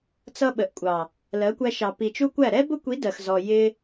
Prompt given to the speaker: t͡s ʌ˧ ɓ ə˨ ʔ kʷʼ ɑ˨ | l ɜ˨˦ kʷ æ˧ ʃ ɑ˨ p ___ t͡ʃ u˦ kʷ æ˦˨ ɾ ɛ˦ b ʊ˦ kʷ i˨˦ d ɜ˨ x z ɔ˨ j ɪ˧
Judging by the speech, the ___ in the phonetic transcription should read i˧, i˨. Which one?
i˨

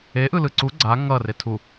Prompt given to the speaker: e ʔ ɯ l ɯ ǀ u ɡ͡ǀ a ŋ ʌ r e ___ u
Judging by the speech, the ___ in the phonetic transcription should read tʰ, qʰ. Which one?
tʰ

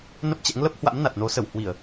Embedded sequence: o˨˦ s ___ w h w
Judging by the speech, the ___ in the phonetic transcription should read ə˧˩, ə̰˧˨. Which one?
ə˧˩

